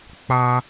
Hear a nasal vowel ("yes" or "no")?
no